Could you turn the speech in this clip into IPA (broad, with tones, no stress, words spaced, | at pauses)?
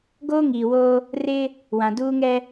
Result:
ɡoː˦ŋiː˨ woː˦ | rɪ˦ | wã˨duː˦ŋɛ˦